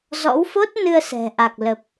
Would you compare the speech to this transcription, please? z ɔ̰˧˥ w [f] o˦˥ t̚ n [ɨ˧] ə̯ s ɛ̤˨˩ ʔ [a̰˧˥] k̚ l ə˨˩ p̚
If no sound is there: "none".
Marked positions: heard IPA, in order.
f, ɨ˧, a˨˩

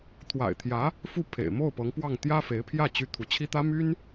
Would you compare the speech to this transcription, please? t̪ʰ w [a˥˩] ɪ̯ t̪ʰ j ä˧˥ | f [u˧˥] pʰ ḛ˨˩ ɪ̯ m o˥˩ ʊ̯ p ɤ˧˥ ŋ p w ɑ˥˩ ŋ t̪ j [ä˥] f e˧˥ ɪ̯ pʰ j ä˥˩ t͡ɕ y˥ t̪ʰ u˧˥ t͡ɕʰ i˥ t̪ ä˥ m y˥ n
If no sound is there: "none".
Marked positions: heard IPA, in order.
a̰˨˩, u˥˩, ä˥

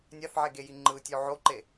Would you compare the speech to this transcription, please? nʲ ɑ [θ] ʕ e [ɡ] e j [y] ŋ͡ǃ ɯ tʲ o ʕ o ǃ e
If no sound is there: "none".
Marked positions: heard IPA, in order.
θ, ɡ, i

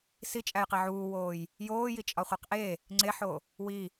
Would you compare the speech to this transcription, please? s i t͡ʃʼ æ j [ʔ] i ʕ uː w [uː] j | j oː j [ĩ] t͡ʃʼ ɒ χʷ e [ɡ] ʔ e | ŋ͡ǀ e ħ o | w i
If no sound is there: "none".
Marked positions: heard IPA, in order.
q, oː, i, q

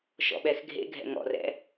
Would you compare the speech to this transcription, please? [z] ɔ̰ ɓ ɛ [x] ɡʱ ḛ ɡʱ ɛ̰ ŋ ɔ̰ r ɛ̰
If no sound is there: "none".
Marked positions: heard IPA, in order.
ʃ, x

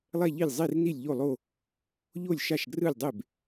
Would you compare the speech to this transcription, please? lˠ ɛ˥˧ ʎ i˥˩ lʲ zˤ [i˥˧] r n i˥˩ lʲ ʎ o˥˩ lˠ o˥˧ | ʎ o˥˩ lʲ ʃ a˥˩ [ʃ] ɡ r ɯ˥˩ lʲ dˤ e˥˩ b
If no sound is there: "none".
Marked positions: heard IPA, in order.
i˥˧, ʃ

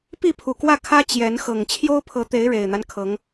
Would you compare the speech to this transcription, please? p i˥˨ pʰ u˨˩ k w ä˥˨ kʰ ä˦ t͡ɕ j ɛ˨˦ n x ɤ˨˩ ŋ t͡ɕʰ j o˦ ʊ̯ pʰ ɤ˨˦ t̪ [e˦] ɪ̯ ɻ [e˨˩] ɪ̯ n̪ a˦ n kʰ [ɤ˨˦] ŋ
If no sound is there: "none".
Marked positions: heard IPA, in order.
e˨˦, e˨˩, ɤ˨˦

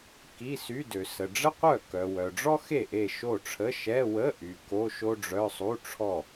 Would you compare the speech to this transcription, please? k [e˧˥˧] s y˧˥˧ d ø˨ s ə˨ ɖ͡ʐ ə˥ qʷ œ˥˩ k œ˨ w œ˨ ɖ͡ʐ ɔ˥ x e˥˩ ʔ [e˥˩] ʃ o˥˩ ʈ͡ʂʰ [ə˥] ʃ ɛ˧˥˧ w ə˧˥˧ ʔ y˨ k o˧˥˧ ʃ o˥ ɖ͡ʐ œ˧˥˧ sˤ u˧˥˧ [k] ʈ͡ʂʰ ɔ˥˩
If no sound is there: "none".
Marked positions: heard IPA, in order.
i˧˥˧, e˥˩, ə˧˥˧, none

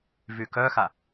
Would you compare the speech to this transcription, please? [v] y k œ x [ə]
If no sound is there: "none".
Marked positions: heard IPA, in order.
v, a

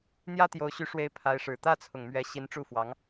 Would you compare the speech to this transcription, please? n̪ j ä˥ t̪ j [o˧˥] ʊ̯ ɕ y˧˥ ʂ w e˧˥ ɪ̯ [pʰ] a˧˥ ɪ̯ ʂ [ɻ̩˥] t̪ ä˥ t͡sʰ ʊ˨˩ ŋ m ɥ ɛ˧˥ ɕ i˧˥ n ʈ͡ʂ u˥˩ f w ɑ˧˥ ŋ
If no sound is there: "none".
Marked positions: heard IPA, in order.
o˧˥, pʰ, ɻ̩˨˩

